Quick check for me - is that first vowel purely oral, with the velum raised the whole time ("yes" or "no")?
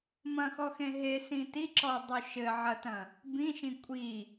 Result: no